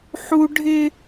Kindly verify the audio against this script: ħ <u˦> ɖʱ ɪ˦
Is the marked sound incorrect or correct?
correct